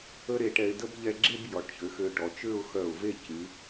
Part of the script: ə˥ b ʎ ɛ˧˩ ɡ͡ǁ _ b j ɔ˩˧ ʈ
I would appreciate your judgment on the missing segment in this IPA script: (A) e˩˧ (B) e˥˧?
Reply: B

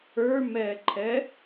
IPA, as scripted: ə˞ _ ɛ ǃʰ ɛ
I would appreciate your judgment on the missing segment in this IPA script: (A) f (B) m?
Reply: B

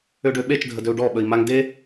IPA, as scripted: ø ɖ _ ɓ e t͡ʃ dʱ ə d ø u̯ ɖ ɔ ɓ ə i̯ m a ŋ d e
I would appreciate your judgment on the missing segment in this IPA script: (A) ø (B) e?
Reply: A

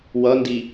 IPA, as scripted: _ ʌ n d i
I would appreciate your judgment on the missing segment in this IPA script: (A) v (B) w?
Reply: B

